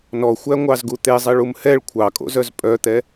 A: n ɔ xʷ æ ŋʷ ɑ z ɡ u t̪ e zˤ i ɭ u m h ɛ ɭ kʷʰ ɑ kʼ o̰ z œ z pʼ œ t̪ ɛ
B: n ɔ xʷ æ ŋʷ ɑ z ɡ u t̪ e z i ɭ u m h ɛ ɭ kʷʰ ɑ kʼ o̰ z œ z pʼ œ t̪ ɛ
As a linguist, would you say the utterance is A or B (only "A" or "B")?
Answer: A